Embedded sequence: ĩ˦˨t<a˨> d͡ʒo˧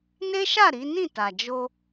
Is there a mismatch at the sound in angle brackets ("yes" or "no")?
no